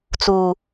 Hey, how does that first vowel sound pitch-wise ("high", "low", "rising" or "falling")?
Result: low